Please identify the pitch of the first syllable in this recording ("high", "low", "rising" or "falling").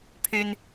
high